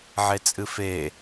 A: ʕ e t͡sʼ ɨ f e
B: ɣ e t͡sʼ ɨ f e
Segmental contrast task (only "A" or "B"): A